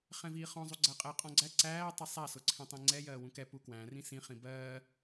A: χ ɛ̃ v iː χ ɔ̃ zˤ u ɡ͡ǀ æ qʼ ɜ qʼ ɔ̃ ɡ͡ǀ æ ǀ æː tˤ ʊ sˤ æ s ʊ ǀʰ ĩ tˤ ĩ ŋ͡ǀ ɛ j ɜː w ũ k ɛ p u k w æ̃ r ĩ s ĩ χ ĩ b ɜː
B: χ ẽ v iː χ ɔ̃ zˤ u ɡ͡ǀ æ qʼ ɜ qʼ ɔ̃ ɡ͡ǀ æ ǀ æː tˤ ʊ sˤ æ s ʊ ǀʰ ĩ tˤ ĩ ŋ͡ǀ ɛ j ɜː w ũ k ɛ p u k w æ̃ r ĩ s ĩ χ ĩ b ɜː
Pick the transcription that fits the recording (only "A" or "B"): A